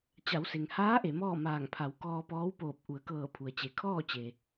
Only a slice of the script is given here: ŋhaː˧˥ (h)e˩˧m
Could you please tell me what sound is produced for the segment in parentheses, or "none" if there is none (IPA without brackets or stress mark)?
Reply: ʔ